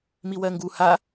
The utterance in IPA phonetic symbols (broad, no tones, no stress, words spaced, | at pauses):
miwɜŋɡu ha